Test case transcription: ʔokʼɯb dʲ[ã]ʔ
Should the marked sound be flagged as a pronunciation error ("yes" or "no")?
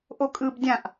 no